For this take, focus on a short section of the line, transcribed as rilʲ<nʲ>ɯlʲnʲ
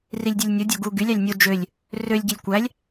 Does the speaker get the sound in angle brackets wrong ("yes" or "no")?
yes